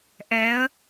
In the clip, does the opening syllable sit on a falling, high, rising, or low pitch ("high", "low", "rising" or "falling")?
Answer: rising